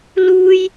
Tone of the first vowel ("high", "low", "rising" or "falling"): high